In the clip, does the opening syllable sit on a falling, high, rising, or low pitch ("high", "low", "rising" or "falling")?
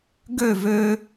falling